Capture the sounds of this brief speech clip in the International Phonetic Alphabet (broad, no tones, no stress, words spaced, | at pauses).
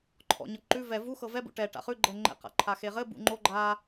ǃʰɔ̰ ɲɤǃʉ vɛ vu xɤvɛ bṵʈɛ ʈa̰χʉ ɡ͡ǃɛŋ͡ǃɛ̰ qa̰ǃʰaxeʁɘ bṵŋ͡ǃo ɡ͡ǃa